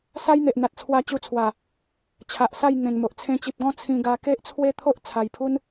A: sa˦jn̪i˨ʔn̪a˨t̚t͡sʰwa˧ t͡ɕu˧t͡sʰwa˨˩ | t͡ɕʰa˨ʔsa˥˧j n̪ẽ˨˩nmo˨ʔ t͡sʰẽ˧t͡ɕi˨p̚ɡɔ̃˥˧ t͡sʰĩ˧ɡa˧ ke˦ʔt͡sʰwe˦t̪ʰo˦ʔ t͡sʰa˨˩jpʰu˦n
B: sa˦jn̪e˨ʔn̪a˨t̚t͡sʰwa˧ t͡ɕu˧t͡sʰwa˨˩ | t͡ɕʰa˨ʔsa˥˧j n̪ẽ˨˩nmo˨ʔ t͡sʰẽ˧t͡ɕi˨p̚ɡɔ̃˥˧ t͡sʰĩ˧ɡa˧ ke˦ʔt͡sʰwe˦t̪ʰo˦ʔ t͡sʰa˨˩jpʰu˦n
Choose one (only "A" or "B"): B